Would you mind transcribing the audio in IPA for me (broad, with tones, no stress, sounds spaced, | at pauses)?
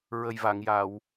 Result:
ɹ ə˨˩ j v a˨˩˨ ŋ j a˨˩˨ w